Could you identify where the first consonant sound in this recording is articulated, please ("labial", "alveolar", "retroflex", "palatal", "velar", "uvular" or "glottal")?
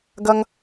velar